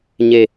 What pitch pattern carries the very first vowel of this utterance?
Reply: low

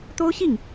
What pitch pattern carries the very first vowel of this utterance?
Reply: high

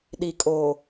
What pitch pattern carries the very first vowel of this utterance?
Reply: low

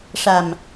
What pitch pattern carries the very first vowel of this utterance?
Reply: low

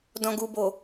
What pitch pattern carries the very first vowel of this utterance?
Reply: low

